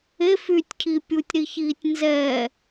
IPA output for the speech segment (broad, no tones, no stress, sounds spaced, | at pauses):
e f y tʲ cʰ i pʲ u tʲ ɾ i ç iː tʲ n z ɛː